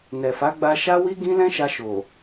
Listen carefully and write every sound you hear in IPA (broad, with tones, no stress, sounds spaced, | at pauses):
n ɛ˨ f a˨˦ ɡ͡b a˧ ʃ a˦ w i˦ ɡ ĩ˦ l ɛ̃˦ ʃ a˧ ʃ o˨